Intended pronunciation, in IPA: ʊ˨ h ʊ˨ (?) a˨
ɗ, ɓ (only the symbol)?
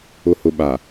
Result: ɓ